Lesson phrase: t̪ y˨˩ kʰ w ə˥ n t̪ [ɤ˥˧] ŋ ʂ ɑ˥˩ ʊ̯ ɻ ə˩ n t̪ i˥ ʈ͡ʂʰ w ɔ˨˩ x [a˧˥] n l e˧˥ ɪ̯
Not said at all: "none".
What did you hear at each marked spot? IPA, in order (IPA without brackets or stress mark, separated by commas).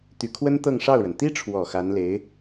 ɤ˥˧, a˧˥